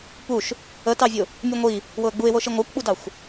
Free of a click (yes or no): yes